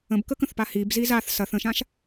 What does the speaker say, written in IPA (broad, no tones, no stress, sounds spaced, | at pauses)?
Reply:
ə̃ b k ə k ə̃ θ p a h i b z i z a θ s ɐ θ ə̃ ʃ ã ʃ